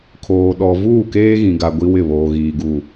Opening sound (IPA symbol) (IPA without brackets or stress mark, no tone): kʰ